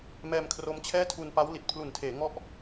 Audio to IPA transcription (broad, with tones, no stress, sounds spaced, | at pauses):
m ɛː˧ m kʰ r o˦˥ m t͡ɕʰ ɛː˥˩ tʰ u˧ n p a˦˥ w l i˨˩ t̚ pʰ l u˨˩ n tʰ eː˩˦ ŋ ɔ˥˩ ʔ